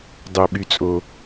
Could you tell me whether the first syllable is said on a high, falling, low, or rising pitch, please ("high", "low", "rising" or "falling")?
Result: low